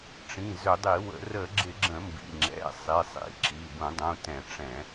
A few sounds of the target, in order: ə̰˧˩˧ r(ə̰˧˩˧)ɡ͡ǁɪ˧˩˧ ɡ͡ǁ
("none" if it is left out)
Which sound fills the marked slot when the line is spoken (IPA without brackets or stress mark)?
ə˧˩˧